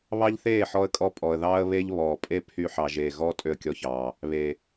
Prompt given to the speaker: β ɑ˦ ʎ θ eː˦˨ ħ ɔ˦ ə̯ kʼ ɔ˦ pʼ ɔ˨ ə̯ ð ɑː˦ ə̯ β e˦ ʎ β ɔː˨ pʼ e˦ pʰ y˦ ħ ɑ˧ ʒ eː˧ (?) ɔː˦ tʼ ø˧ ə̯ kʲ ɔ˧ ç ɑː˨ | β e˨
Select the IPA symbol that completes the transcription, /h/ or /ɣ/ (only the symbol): ɣ